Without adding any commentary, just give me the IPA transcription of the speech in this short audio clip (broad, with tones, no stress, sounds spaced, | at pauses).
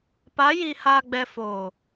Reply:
p a˨˦ j i˨ h aː˨ ɡ͡b ɛ˨ f oː˨